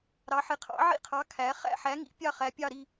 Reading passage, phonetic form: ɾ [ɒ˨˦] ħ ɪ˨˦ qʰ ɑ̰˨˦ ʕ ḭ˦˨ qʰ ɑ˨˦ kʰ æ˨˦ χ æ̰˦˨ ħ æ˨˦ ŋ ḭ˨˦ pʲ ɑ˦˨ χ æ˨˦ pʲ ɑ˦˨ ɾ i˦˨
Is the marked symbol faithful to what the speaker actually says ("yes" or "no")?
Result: no